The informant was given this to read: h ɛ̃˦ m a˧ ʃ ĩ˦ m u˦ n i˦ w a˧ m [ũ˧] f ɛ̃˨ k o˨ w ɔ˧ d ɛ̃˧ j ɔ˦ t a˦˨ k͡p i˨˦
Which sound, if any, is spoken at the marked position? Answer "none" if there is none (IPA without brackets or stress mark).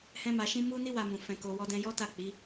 ũ˨